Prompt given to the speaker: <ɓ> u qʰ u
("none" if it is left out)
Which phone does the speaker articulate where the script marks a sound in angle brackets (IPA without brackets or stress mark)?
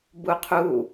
b